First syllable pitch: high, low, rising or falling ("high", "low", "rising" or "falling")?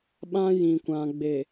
high